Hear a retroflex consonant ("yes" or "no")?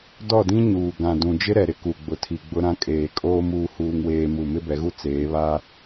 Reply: no